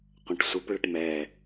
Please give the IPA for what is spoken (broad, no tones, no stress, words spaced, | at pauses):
qʷɐ̃ʈsʷɯp ɭəʈmɛ